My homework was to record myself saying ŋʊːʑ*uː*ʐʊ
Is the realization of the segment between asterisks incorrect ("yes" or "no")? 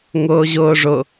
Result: yes